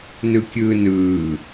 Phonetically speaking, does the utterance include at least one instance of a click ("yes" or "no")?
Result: no